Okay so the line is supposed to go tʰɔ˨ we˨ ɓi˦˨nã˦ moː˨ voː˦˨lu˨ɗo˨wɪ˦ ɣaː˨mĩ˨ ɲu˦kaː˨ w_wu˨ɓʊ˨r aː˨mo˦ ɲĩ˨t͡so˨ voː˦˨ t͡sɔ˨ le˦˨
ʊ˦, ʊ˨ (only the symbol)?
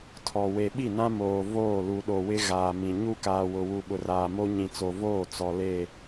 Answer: ʊ˨